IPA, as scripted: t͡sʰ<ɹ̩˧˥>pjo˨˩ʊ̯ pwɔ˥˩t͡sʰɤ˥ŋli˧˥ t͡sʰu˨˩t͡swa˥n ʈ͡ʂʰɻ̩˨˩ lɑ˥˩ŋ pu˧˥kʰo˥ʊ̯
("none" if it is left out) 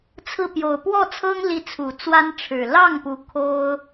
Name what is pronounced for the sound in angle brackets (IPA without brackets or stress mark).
ɹ̩˥˩